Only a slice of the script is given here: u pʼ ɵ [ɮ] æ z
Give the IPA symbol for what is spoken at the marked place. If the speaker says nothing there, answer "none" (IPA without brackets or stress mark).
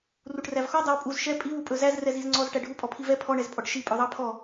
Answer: z